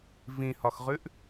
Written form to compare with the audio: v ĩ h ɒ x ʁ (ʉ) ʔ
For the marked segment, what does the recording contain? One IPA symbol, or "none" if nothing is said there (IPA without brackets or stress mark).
ʉ